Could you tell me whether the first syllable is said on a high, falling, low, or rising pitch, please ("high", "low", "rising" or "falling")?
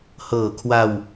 low